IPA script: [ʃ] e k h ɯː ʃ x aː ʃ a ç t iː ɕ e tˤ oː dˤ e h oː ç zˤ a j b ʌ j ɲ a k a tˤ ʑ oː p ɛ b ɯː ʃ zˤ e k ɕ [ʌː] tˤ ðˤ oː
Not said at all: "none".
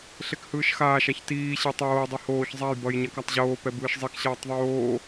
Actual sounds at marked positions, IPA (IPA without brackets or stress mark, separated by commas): ɬ, ʌː